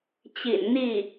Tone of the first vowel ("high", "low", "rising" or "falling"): low